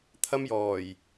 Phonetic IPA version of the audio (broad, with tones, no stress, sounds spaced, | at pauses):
t̪ʰ ɐ˥ m j ɔː˨˩ j